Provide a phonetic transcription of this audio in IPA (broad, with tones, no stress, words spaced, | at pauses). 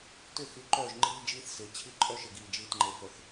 tʏ˦˨xy˨˦ǃœː˦˨ʒ ŋ͡ǃiː˦d͡ʒiː˦θsɪː˨t͡ɕʰi˦ ǃʼœ˦ʃɪ˨ɡiː˨ d͡ʒiː˨tŋ͡ǃe˨fœ˨θ